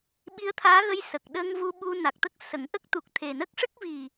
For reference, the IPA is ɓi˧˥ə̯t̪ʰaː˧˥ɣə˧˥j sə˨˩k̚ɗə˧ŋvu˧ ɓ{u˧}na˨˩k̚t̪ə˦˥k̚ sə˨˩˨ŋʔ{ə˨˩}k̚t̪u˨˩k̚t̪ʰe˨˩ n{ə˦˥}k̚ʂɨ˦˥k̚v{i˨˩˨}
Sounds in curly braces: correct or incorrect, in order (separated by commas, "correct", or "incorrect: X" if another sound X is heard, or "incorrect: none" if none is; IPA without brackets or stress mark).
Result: correct, incorrect: ə˦˥, correct, incorrect: i˨˩